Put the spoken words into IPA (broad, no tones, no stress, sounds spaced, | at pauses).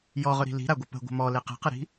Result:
j ɔ ʁ ɵ ɾ i̤ l i̤ ɾ a ɡʷ ə p ə̤ ɡʷ ə̤ m ɔ l e q e̤ q ə ɾ i̤